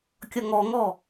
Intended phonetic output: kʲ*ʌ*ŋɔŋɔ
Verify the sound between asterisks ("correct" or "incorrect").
correct